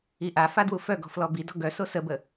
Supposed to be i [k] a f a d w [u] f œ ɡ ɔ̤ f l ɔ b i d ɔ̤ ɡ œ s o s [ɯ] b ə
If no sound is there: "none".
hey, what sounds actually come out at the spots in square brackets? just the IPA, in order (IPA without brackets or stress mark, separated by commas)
ʔ, u, ə